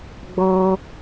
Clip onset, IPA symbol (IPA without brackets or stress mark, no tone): ɡ͡b